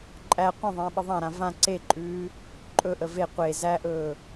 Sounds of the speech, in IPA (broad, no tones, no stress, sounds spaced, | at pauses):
ǃʼ æ qʷ ə̃ ðˤ ə̃ː ɓ ə ðˤ ã ɾ ã v ã ǀ e ǃʼ ʉː | ǃʼ ɵ ʔ ə v e qʷ e z æ ʔ ɵː